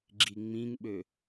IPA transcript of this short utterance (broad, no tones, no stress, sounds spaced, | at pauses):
ɡ͡ǁ i ŋ͡m ĩ ŋ ɓ ø